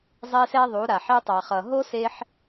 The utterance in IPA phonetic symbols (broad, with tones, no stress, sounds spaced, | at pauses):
zˤ e˦ s ɛ˦ ðˤ u˨˦ ɾ a˨ ħ e˧ tˤ a˨ χ ʌ˨ ɦ o˦ s e˧ ħ